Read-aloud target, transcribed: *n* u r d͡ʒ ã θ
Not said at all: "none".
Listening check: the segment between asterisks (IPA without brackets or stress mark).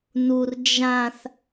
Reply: n